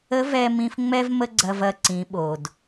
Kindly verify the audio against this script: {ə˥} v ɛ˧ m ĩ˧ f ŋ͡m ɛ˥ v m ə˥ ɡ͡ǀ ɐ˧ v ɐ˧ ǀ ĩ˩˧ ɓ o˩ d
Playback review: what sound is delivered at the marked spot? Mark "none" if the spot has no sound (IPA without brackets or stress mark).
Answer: ə˧˥